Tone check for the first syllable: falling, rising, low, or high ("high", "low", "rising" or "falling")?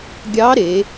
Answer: rising